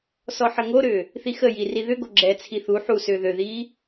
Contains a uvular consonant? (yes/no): no